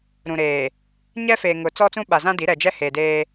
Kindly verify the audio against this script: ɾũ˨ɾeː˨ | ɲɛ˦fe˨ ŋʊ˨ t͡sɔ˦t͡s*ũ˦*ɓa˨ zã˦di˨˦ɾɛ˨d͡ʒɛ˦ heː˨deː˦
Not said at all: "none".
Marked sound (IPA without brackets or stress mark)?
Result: ũ˦